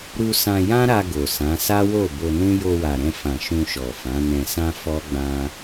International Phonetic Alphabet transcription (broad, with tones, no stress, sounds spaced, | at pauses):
ɾ u˧ s ã˧ j ã˦ ɾ a˧ ɡ o˨ s ã˨˦ s a˦ w o˦˨ b o˧ n ũ˦ j o˧ w a˨ ɾ ɛ̃˧ f ã˨ ʃ ũ˧ ʃ ɔ˨ f ã˨˦ n ɛ̃˧ s ã˦ f ɔ˦ ɡ͡b ã˦